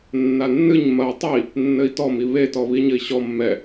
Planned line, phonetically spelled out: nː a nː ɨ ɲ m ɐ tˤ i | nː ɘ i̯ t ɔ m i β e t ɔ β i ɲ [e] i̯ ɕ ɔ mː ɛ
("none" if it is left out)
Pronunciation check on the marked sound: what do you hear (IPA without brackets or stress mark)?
ɘ